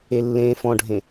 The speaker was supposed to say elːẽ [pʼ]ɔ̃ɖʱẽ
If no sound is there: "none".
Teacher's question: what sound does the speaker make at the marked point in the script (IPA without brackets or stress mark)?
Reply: f